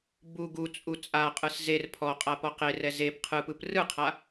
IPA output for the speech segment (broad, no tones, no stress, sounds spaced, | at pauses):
b u ɡ u t͡sʼ u t͡sʼ a qʼ ɯ s z e r pʰ ɔ qʼ a p ɔ q e r ɛ z e p qʰ ɯ p ɯ p r ɯ qʰ a